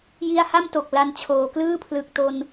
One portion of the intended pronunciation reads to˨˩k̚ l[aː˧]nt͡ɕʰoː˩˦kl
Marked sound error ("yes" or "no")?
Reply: yes